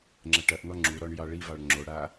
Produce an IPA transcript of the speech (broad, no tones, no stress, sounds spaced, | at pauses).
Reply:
ŋ͡ǁ ɐ ʈ ɐ ʔ n̪ ɔ ŋ͡ǁ u ɾ ɔ ɳ j ɑ ɭ i v ɑ ɭ ŋ͡ǁ o ɽ a